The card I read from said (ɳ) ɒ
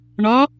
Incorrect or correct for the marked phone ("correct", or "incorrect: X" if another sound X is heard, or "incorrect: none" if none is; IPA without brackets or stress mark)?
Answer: correct